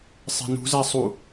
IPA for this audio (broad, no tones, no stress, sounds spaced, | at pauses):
sˤ e̤ n ṳ z æ sˤ u